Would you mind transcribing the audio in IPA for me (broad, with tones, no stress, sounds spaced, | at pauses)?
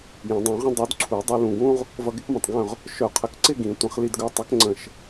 j ə̃˨˩˦ dˤ ũ˨˩˦ ʁ ə̃˥ dˤ u˨˥ d ǀʰ u˨˩˦ dˤ ɵ˧ l ũ˧˩ ɡ ũ˥ ʁ | v ʌ˧ ɡ ɪ˥ k m ə̃˧˩ tˤ ɡ œ̃˥˧ ʁ | ʃ œ˧˩ qʰ ə˧˩ k ǀ ɪ˥˧ ɡ ĩ˨˩˦ tʷ ə̃˨˩˦ χ l i˧ d ɡ œ˨˥ tˤ ə˨˥ k ŋ͡ǀ ə̃˧˩ ʃ